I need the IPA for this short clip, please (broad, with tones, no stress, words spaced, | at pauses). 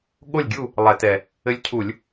ɠo˥˨lʲɡʲu˥˨ | lˠɛ˧˩˧tɛ˨˩ | ɘ˧˥lʲcʰu˧˩˧lʲ